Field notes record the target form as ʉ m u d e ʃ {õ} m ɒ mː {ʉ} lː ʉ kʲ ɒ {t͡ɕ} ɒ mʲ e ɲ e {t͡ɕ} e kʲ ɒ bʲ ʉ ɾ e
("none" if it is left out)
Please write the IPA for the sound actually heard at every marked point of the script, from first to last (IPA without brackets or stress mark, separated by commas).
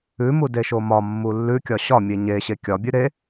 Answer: o, u, ɕ, ɕ